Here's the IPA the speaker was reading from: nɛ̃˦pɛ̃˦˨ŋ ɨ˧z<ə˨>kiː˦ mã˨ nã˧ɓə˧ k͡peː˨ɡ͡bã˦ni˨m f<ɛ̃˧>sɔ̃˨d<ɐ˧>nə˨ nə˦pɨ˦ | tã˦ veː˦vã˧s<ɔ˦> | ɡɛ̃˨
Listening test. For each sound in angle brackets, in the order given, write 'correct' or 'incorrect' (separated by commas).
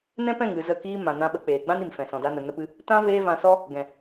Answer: incorrect, incorrect, incorrect, correct